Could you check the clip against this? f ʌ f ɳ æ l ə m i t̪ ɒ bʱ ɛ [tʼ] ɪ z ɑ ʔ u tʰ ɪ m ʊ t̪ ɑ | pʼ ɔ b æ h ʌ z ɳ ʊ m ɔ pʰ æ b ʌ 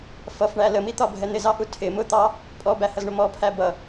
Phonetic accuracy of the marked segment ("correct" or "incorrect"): incorrect